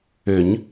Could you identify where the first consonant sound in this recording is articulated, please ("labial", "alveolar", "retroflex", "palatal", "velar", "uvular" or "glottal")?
palatal